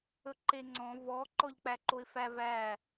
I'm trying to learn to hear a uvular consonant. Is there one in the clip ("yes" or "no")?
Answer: no